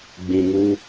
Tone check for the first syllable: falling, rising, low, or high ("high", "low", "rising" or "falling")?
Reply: low